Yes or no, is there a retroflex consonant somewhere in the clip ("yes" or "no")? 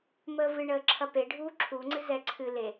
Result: yes